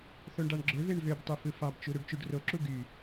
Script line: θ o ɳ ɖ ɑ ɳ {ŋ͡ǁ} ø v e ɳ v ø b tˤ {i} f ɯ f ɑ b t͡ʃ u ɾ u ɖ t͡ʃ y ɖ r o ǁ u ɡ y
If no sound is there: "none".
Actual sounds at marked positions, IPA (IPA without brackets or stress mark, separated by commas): ɡ͡ǁ, y